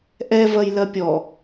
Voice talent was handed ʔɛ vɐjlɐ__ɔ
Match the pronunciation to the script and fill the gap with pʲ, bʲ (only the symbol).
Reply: pʲ